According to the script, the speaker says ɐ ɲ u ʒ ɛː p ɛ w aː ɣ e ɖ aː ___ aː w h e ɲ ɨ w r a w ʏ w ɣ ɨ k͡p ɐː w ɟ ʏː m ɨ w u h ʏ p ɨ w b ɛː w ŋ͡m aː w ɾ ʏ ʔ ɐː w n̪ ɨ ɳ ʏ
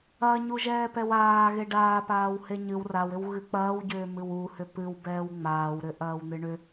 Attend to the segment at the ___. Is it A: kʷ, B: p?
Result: B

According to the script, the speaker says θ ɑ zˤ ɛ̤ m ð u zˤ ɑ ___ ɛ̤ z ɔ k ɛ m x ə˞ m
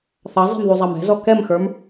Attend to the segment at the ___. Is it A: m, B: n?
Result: A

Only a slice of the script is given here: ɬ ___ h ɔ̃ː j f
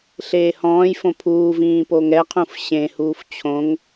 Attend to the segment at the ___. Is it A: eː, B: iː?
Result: A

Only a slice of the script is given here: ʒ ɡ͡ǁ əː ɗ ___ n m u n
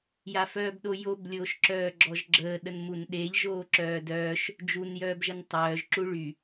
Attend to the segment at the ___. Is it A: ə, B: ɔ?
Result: A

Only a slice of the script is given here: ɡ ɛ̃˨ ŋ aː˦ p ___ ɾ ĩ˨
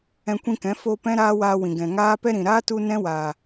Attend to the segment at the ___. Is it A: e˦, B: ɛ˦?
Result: B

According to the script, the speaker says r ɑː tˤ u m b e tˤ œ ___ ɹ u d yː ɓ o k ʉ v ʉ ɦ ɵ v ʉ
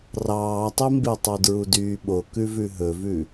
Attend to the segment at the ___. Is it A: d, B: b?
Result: A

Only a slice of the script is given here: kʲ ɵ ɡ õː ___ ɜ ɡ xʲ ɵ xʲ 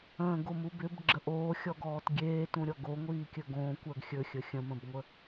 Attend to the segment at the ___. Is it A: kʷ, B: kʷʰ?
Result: A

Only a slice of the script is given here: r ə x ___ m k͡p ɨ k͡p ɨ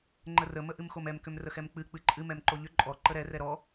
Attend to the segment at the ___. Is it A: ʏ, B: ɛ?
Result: B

